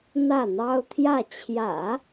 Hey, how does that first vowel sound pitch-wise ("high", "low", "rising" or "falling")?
falling